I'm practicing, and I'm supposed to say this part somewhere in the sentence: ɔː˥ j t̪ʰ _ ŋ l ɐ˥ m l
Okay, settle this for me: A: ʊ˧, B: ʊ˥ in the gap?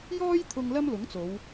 A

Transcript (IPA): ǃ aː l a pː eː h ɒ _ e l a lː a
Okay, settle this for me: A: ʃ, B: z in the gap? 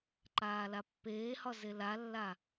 B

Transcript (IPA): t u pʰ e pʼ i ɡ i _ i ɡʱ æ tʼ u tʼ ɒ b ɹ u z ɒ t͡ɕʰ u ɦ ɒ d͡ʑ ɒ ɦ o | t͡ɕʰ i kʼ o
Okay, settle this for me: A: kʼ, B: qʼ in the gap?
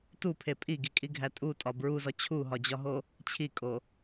A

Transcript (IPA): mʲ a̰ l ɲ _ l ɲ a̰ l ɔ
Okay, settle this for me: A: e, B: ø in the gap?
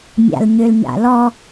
B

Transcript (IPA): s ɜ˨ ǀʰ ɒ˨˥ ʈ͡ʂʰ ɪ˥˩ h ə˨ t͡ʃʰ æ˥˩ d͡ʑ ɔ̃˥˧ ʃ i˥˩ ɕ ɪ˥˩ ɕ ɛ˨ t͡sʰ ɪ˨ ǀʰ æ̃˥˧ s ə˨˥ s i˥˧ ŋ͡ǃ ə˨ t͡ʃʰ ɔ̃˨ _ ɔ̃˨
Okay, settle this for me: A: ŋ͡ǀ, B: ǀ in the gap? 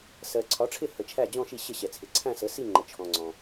A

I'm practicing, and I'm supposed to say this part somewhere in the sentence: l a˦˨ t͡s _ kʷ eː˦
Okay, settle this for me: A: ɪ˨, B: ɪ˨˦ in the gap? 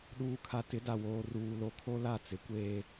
B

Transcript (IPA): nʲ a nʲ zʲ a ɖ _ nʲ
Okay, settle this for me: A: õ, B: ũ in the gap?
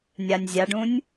B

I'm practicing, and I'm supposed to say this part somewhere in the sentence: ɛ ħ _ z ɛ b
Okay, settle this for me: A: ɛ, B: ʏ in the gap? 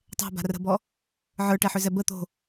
B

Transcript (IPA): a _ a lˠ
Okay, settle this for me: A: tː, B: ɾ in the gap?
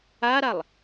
B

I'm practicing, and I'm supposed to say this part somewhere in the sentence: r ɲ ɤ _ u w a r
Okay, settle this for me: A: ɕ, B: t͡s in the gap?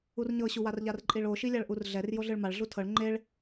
A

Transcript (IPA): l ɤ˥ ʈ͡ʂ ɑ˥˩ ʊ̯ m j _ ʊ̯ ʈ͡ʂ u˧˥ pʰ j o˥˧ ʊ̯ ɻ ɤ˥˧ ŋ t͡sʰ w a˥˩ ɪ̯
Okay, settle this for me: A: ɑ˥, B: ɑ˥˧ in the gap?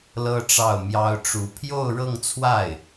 A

